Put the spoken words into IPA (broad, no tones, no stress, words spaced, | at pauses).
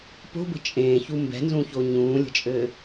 po̤bə̤ t͡ʃʼẽːçu mbɛ̤nzũço ɲũːlʲə̤t͡ʃʼɘː